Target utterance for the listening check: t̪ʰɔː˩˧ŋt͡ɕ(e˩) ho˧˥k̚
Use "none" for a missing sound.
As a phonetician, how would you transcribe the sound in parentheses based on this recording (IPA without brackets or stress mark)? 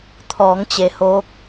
e˩